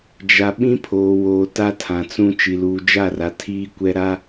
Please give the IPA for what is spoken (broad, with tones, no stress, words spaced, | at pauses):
d͡ʒa˨ ɓĩ˦pʰoː˨woː˨ ta˦tʰã˨t͡sũ˦ t͡ʃi˨luː˨d͡ʒa˦˨ra˨ tʰiː˦kʷɛ˦ɾa˦